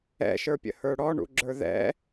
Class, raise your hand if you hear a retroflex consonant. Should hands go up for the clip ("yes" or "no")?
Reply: yes